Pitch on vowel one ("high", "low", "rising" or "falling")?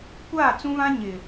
falling